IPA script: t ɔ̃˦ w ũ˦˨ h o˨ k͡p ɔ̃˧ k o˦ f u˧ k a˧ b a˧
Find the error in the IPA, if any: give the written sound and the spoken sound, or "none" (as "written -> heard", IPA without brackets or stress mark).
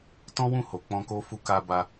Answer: none